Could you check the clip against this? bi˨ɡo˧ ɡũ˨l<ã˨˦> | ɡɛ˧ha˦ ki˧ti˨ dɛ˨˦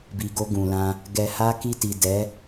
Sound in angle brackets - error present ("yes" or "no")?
yes